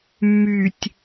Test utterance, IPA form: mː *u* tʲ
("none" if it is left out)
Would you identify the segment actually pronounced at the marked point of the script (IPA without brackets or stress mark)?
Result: y